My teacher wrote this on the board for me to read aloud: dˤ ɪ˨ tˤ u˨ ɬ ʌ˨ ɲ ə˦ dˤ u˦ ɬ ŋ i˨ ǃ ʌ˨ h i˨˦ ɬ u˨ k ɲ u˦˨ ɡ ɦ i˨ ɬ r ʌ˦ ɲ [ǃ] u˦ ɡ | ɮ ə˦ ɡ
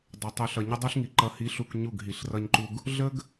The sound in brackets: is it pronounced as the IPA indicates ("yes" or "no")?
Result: yes